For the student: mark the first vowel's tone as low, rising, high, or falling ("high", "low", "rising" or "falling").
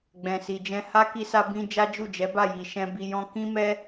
low